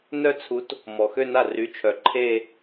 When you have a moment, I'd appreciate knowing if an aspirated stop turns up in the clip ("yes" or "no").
yes